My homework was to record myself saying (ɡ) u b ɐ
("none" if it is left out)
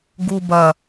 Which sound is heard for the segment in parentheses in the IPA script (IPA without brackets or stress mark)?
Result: ɡ